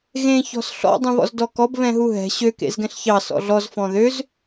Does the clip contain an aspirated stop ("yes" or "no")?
no